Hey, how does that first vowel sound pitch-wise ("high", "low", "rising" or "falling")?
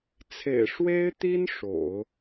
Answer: low